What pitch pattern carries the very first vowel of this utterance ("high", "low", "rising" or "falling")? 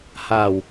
low